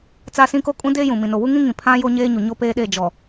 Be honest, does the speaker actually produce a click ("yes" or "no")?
no